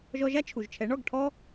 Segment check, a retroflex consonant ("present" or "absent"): present